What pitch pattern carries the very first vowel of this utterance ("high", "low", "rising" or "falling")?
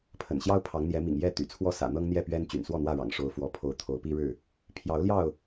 low